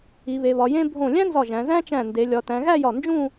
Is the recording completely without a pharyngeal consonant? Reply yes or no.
yes